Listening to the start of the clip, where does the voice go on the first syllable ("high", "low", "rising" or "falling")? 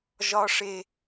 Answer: high